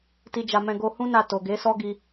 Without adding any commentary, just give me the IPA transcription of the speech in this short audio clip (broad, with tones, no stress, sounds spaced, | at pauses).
t i˧ d͡ʒ a˧ m ɛ̃˧ ɡ o˧ h ũ˦ n a˦˨ t o˨ ɡ e˨˦ s ɔ˦ ɡ i˧